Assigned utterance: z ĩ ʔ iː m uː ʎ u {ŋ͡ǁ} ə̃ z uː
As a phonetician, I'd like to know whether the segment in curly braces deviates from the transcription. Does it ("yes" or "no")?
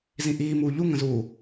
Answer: yes